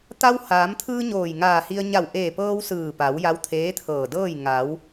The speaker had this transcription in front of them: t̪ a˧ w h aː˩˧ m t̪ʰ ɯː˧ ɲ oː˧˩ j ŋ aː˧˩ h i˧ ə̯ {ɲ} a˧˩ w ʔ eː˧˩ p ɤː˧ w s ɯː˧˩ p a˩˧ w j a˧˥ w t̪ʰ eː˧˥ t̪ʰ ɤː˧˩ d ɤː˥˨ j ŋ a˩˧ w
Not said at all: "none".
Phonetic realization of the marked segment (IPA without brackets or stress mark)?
ɲ